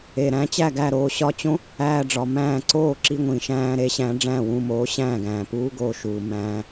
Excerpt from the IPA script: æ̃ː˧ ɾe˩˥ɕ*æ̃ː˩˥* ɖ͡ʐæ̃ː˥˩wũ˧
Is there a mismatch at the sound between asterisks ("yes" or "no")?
yes